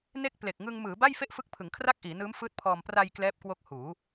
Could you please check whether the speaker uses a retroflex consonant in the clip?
no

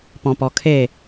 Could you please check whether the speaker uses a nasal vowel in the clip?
yes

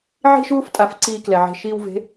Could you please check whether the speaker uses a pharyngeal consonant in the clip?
yes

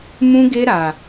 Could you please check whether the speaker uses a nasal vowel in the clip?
yes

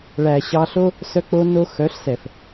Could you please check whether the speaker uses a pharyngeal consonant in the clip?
no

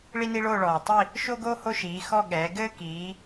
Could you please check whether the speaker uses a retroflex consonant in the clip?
yes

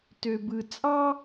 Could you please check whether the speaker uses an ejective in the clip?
yes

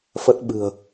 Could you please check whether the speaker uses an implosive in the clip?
yes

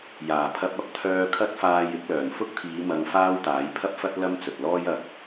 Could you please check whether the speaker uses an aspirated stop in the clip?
yes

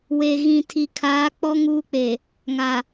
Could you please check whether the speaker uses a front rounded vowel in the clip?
no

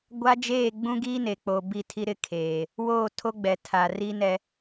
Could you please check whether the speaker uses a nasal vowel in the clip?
yes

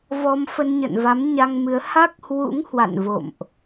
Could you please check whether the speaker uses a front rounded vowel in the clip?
no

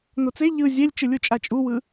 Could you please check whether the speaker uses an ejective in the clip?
yes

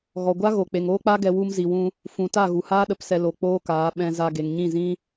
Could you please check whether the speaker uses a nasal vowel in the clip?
yes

